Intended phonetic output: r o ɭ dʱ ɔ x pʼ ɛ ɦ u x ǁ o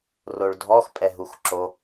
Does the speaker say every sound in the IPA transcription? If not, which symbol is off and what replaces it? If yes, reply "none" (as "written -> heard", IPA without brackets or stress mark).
none